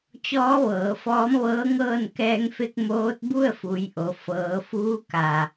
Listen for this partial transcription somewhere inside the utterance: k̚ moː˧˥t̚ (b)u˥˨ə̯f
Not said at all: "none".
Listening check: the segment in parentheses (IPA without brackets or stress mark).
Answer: b